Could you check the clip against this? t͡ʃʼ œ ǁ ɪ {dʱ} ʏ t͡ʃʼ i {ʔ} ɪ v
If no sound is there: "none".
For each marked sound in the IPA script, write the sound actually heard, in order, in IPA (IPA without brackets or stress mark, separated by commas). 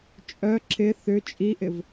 θ, ʔ